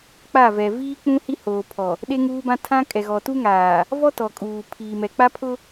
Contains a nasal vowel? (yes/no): yes